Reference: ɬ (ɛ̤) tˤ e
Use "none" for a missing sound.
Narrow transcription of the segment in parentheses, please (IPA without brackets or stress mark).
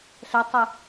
ɛ